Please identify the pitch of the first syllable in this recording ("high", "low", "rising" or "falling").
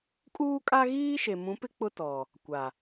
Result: high